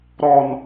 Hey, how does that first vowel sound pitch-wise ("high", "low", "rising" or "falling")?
high